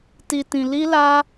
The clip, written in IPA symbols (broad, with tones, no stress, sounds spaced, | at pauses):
t i˧ t ĩ˧ l i˦ l a˦